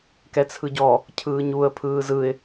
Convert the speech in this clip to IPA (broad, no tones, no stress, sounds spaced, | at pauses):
k ɛ t͡sʰ ɯ ɟ ɔ | cʰ ɯː ɲ u ə̯ pʰ ɯː z ɯ ɪ̯